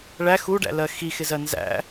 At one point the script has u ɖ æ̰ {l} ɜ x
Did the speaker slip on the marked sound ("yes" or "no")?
no